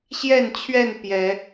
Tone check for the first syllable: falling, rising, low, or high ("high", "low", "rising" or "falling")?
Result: falling